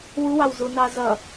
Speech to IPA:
wuwɑwzunɑ zʌ

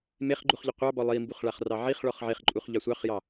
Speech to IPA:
meχɡ͡ǃuχʎɪ qʷɑbɔ lˠimbuχɭaχrɑ ʕiχɭɔχ ʕeχǃʼuχʎɑ sʷɑχjɑ

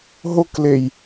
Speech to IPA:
ɦoklej

